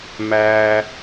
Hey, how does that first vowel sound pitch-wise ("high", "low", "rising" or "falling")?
low